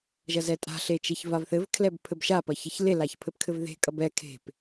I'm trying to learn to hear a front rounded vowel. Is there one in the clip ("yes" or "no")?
no